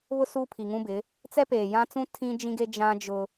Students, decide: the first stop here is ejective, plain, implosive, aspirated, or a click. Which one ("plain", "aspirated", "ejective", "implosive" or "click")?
aspirated